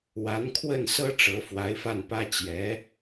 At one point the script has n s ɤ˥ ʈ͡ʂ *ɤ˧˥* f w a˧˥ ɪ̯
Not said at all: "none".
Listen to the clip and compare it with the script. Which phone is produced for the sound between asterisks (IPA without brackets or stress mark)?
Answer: ɤ˧˥